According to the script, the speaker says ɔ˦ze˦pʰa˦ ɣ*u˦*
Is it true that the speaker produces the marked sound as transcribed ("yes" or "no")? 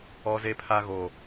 no